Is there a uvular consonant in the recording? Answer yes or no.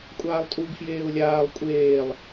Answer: no